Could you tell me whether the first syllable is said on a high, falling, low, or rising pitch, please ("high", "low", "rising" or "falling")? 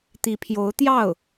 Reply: rising